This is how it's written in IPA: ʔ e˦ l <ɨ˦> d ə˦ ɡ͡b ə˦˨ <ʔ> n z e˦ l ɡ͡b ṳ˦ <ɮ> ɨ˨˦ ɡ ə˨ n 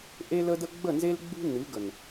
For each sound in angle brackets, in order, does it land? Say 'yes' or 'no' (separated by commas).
no, no, no